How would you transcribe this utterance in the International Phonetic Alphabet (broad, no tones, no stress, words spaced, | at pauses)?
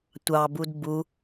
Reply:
tʷɑbud bu